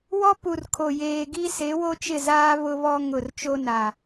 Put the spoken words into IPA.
wɔ˦pu˨r kʰo˨jeː˨ɡi˦ se˨˦wo˦t͡ʃɪ˦˨zaː˦ βʊ˦βɔ˦ ŋʊ˦˨r t͡ʃo˦na˨

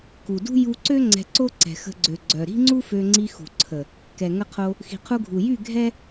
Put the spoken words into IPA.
ku˨dṳ˦ ju˧ǀø˦ ŋ͡ǀɛ̤˧ǀo˦ ǀɛ̤˨xə̤˧ɡ͡ǀø˨ ɡ͡ǀœ˨ ɾi̤˦ŋ͡ǀu˦fø˧ŋ͡ǀi˧ xṳ˨ǀʰə˨ | kɛ˨ŋə˧qʰo˧ | xi̤˨qʰu˧ɡʱu˨jy˦˨ ɡʱɛ˦

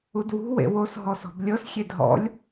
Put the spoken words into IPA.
udwṳ wḛwos ɦɔsɔ̤blʲɤs xʲedɦɔ̰lʲ

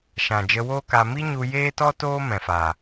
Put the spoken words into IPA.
ʃã˨d͡ʒə˧woː˦ka˧ mi˦ɲu˧ jeː˦tɔ˦ toː˦ mɛ̃˨faː˨

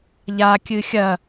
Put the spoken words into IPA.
ʎa kʲɨxʲɐ

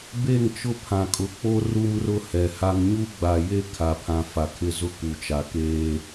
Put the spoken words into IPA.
be˦˨ŋt͡ʃʊ˦ pʰã˨kʼʊ˨k͡po˦ ru˦mrʊ˦hɛ˨ha˦ŋ ɲu˦ɡ͡ba˨je˦ kʰa˨pʰã˨ fa˨kʰɪ˦˨zʊ˦ ku˨t͡ʃa˨keː˦

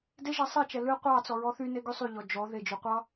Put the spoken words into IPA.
de ʒɛsˤet͡ʃɛ lɨ qʷɑ t͡sɔɹɔθyne ɡysˤyʎɔ d͡ʒɔ ðed͡ʒy qʷɑ

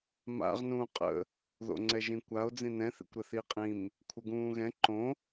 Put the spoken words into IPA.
ma̰ʁ nũːqʼə̰ | ðo̰ŋ͡ǀɛʒĩkʷao̯ d͡zĩnɛ̃ θḭkʷɾɘθi qʼĩm | kʷʰəɡũːɣɛ̃ ǃõ

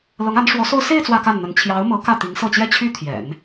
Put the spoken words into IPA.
lɤ˧˥ŋa˧˥nʂwɔ˧˥so˥˧ʊ̯ se˥˧ɪ̯ t͡swä˥˧ka˥˩nn̪ə˧˥n t͡ɕʰjɑ˧˥ʊ̯ mɤ˧˥ kä˥˩t̪i˧˥ŋsɤ˥˩t͡ɕjɛ˥ t͡ɕʰy˥ t̪ʰjɛ̰˨˩˦n

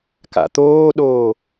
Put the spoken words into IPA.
ka̰t̪oːɗoː

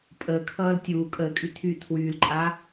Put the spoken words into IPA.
pʼəː kʰʌːltʲuː kʼəːkʼy tʰy tʰwyːlǃʼaː

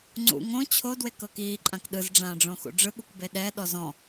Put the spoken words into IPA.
ŋ͡ǀṵ ŋõ t͡ɕʰo dwekɤkiː ǃʼãkɗɯz ɖ͡ʐãːɖ͡ʐõxṵɖ͡ʐɯ ɠukbeɗɛ ɗɔzɔ̃

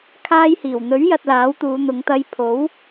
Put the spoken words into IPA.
kʰaː˧jhiː˨˩wn̪ɵ˨˥ɥ jɐ˧t̚laː˨˥wt̪uː˨˧n̪ʊ˨˧ŋ t̪ɐ˧jpʰo˨˥w

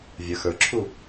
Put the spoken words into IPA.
vʲə˞xə˞ǁʰu

